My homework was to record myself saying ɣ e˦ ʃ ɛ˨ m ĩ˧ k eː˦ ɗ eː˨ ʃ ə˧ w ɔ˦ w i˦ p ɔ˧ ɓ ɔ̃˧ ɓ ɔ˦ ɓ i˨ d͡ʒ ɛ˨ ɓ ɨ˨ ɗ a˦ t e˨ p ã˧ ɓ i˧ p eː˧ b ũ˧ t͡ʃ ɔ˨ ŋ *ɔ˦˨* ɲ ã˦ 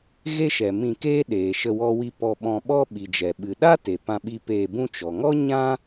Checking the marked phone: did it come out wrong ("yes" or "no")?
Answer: yes